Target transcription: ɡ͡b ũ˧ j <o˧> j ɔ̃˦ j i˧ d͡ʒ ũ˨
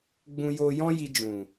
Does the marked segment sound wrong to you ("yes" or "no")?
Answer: no